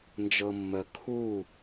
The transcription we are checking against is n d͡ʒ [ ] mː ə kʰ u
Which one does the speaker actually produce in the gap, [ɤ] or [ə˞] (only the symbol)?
ɤ